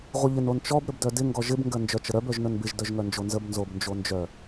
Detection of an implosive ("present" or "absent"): absent